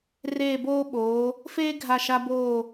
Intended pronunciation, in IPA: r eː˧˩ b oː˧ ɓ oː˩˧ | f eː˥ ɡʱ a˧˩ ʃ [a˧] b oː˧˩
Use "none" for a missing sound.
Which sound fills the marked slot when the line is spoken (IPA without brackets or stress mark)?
a˧